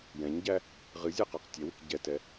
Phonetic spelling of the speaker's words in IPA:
j ɛ̃ ɲ ɟ æ | ʁ ɨ zʲ ɤ q a q tʲ ɛ w ɨ k ɟ ɛ t ɛ

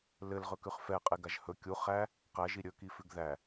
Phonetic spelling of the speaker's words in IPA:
l ɘ l ʁ ɵ k ʉ χ f ɛ qʼ e ɡ a ʒ h ɵ kʲ u χ æ | q æ ʒ i ɾʲ ɵ k i f ʉ ɡ ð æ

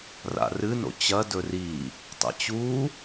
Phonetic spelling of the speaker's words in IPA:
r a̰ r ɨ n o̰ t͡ɕ ɐ d ɵ r i | tˤ ḛ t͡ɕ u

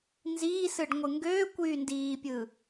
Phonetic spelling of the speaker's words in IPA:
n z iː s ɯ ɖ ŋʷ ɯ ŋ ɡ øː kʷ yː n d iː pʲ ɯ

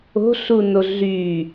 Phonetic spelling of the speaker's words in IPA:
o̤ ɬ u n o ɮ y

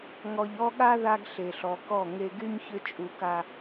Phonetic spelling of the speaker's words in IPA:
ŋ ɔ˨ ʎ ɔ˦ ɠ a˦ ð a˦ ɡ ɬ e˨ ɬ ɔ˨ k ɔ˦˨ ŋ e˨ ɡ y˦ ɲ ç ʏ˦ t͡ʃʼ u˨ k a˨

